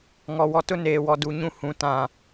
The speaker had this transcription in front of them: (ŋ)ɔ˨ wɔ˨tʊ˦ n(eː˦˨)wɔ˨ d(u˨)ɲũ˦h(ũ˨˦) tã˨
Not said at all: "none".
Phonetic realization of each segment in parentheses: ŋ, eː˨, u˨, ũ˨˦

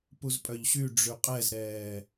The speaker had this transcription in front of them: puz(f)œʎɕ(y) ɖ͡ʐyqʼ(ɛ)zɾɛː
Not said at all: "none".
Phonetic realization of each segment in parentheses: pʼ, y, ɛ

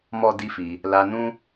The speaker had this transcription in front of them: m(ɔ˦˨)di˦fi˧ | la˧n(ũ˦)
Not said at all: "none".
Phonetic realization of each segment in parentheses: ɔ˦, ũ˦

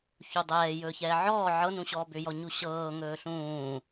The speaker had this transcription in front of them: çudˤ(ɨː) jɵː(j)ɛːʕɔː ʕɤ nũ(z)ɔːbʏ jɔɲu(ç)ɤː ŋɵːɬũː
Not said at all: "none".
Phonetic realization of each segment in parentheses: ɛː, ç, ɕ, ɕ

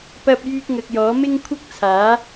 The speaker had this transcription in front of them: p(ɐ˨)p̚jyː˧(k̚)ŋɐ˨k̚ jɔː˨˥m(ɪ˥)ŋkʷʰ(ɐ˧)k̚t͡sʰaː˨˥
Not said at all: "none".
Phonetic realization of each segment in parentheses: ɐ˧, k̚, ɪ˥, ɐ˥

